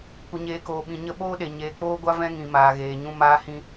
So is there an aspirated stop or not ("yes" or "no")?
no